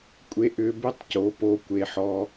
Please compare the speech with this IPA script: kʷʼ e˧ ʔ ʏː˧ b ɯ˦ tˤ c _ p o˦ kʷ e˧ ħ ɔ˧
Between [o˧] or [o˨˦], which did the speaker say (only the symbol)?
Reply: o˨˦